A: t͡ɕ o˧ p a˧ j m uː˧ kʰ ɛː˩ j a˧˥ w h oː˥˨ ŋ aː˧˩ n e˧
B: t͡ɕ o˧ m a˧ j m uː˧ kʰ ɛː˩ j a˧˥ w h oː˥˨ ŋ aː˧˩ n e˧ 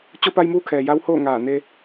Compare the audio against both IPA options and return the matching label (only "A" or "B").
A